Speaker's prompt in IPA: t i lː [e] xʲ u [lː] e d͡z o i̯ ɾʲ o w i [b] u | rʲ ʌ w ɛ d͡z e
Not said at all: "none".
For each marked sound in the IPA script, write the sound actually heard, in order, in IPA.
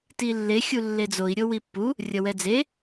e, lː, pː

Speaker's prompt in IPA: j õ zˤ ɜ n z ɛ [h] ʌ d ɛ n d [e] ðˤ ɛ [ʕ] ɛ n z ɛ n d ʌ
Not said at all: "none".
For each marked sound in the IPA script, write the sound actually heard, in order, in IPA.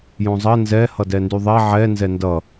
h, y, ʕ

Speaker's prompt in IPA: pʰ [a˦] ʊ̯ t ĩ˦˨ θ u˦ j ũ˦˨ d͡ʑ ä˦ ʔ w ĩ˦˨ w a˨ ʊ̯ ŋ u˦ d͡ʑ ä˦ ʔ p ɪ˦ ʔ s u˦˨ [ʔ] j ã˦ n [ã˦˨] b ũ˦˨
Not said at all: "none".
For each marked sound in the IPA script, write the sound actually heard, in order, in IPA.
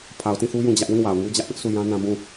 a˨, none, ã˦

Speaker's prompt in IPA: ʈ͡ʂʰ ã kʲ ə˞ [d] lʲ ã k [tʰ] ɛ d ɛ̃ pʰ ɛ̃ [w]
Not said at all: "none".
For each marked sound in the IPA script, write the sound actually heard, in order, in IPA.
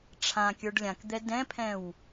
ɖ, d̪, w

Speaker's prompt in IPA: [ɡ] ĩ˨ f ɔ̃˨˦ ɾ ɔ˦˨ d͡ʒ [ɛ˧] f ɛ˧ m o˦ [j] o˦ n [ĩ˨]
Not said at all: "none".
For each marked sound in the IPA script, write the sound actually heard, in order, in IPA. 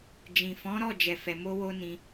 d͡ʒ, ɛ˧, w, ĩ˧

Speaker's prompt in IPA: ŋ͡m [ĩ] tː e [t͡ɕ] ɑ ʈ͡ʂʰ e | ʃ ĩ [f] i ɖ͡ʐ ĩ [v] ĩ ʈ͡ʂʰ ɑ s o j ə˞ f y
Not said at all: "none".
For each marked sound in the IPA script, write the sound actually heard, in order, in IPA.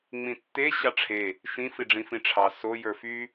ĩ, ɕ, f, f

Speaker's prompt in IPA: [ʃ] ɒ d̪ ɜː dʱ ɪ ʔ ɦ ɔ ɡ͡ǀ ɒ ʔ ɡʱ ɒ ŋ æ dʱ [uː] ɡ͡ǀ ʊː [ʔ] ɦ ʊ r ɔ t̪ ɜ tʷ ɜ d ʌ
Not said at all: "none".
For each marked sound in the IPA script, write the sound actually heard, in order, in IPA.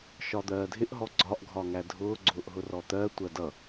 ʃ, ʊː, ʔ

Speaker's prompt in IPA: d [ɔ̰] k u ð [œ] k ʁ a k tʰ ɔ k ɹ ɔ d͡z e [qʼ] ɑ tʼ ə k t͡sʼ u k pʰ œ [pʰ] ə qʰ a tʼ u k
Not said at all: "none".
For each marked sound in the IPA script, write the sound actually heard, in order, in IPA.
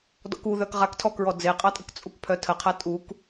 ɔ̰, œ, qʼ, tʰ

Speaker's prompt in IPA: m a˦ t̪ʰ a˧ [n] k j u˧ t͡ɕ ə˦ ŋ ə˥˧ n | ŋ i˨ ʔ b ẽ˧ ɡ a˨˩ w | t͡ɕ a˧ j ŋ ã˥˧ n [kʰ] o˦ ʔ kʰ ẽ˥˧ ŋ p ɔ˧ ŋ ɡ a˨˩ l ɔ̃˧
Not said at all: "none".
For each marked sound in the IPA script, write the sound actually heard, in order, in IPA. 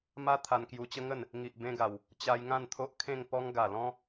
n, t̪ʰ

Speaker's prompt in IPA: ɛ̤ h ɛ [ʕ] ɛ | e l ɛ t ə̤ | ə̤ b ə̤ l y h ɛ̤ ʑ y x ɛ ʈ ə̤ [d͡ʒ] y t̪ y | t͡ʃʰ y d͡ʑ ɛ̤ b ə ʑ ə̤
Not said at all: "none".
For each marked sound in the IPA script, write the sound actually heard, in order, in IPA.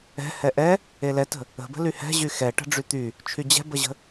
ʔ, ɖ͡ʐ

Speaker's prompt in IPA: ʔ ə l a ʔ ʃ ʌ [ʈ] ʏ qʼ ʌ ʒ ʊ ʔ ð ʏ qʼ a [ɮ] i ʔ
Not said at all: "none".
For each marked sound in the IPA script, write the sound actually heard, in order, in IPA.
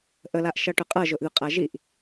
ʈ, ʒ

